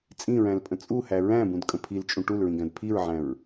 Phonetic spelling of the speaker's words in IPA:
t͡sʼĩɹæ̃lpʼə̃ t͡sʼuhæ ɹæ̃bũdkʼə̃ pʰilt͡ʃʼũ ʈulɹĩɡæ̃d pʰiɹʕæ̃ɹ

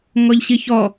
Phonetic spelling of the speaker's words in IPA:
ŋɔʎɕiçɔ

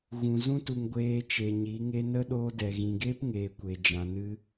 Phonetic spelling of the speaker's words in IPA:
ɣũ˨zũ˦ tu˨ŋ ɡʷeː˧t͡ʃe˨ɲi˨˦ ŋe˧nə˦ɗoː˧dɛ˨ ɣĩ˨ɡeː˦pŋeː˨ kʷe˨d͡ʒã˨nɨ˧

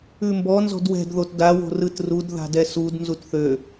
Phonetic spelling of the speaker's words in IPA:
ʉmbɔ nzɔ̤dwɛ̤dðot dawo̤ rɯtrud ða̤dɛsud nzutθø

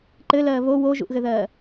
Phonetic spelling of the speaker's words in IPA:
ǃɘlɜː βo woʒṵʔɣɘðɜː

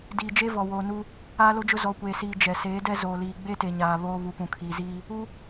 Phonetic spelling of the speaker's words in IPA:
diː˨d͡ʒe˦ vɔ˨woː˨nu˦ | aː˦lo˦d͡ʒʊ˦ zɔ˨kʷeː˨siː˨ d͡ʒɛ˨ seː˨˦dɛ˦ zoː˨liː˨ ɡ͡be˦te˨ɲaː˨ βoː˦ βu˨pũ˨kʰiː˨ziː˦ | u˦

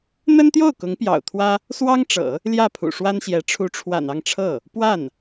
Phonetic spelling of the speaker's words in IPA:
n̪ə˥nt̪jo˥˩ʊ̯ kʊ˧˥ŋpjɑ̰˨˩ʊ̯t̪ʰwä˥ | swɑ˥ŋʈ͡ʂɤ̰˨˩˦ | ljä˥˩pʰṵ˨˩ʂwa˥nɕjɛ˧˥ ʈ͡ʂʰu˧˥ʈ͡ʂʰwa̰˨˩n ɑ˥˧ŋʈ͡ʂʰɤ˥˩ | pwa˥˩n

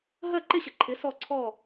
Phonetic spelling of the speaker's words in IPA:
ɦɜ˥˨ǃɪ˥˨ɕə˨˥ ǃʰɪ˨˥ sɔ˥˨ǀʰɔ˥˨

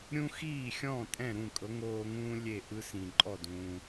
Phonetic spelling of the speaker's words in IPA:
ɾʲũ˥ xiː˥˩xʲɔ̃˥˩ tʼɛ̃˥˩ɾũ˥˩ kʼɤ˩˥ŋoː˧ŋũː˥ lʲe˥˩ʔɯ˥sĩ˩ ǃʼɔ˥˩dũː˩

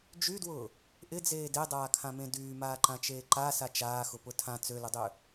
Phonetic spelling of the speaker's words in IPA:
d͡ʒydwʊː | ʔɪd͡zeː dedˤaːkʰãmẽ dyːmaːǃãt͡ʃeː ǃasa t͡ʃaːxʊpʊ tʰã t͡sølʊdˤø

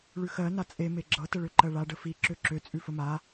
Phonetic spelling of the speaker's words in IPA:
ɭʉxɜ nat͡sʼe meɡ͡ǁɤ təɭøǃɜɭa ɖəfi ǁøǁø t͡sʼʉfəma

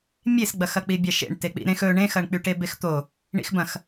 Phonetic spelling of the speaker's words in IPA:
mʲesɡ͡bɐx ɐk͡pibʲɑʃḛɳ tek͡pḭɾẽx ɵ ɳẽxɐɳk͡pyʈe bext̪o | ɳḭxbɐ̃x

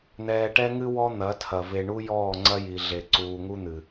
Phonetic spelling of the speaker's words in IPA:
n̪ɛː˨ʈɛ˦ŋɨ˦ wɔ˦n̪ɐ˨˦tʰɐ˨ ve˨ɳu˦ jɔː˦˨ ŋ͡ǀɐ˦ji˨ɮe˨ ǀuː˨ŋu˦n̪ɨ˨

